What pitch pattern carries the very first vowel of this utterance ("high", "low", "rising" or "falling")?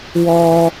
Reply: high